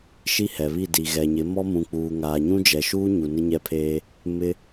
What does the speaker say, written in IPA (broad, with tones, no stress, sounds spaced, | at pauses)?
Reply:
ʃ i˦ h ɛ˨ β i˦˨ d i˨ ɣ ɛ˨ ɲ ɪ˨˦ m ɔ˦ m ũ˨ k͡p uː˨ ŋ aː˨ ɲ ũ˦ d͡ʒ ɛ˨ ʃ uː˦ ɲ u˨ n ɪ˦ ɲ ɛ˦ pʰ eː˦ | m ɪ˦